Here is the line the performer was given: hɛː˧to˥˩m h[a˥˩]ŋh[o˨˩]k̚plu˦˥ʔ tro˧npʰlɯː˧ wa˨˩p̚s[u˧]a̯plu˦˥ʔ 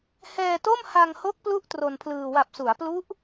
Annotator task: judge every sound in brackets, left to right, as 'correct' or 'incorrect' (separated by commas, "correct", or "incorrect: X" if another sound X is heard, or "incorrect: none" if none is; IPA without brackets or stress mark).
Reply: incorrect: a˧, incorrect: o˦˥, incorrect: u˩˦